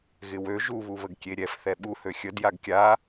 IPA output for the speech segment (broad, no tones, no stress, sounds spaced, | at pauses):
ɣ ɪ w ø ʒ u β u β ə ɡ kʲ e ɾʲ ɛ f θ ɛ ɓ u h ø xʲ ə d j a ɡ kʲ a